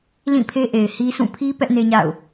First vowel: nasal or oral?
nasal